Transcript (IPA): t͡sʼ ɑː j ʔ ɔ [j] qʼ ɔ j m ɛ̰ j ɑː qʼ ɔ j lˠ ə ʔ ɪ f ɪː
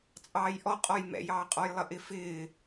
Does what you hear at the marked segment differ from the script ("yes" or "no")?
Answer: yes